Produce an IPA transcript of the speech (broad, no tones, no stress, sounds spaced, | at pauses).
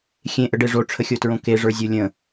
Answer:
xʲ ẽ ʔ ə ɖ e ʐ o ʈ͡ʂʰ ə xʲ o t ɹ õ k e ʐ ə˞ zʲ o lʲ ə̃